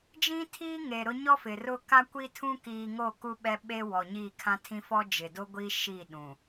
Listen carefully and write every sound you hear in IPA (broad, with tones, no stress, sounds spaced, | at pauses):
d͡ʒ ĩ˦ tʰ iː˦ ŋ eː˨ ɾ ʊ˦ ɲ ɔ˦ f ɪ˨ r ʊ˦ k a˦ kʷ i˦ tʰ ũ˦ k iː˨ ŋ o˦˨ k u˦ ɓ ɛ˦ ɓ e˦ w ɔ˨ ɲ iː˦˨ kʰ ã˦ tʰ ĩ˦ f ɔ˦ d͡ʒ ɪ˨ d o˦ ɡʷ iː˦ ʃ i˦˨ ɗ ũ˨